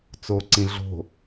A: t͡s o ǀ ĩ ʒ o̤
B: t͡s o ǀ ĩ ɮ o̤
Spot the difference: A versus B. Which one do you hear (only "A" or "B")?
B